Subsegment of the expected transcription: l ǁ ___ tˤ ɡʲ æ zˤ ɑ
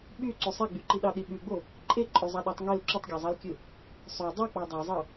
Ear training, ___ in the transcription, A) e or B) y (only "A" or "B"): B